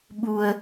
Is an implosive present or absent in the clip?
present